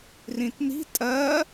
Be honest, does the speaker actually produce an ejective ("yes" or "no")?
yes